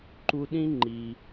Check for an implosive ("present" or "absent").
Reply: present